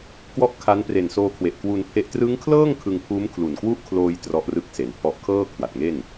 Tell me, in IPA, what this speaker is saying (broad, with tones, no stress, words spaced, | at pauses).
kwɔ˥˩ʔkʰa˦˥n pre˨˩nsoː˧kʰwe˨˩ʔ kwu˧npʰe˦˥ʔ trɯ˦˥ŋkʰlɤː˥˩ŋ kʰɯ˧ŋpʰuː˦˥m kʰlu˨˩nkwu˥˩ʔkʰloː˧j trɔ˦˥ʔrɯ˦˥k̚se˩˦npʰɔ˦˥ʔ kʰɤː˥˩ kʰwa˨˩t̚ŋe˥˩n